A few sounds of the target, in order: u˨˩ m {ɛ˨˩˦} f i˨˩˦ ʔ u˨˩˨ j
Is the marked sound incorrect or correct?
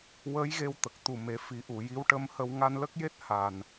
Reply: incorrect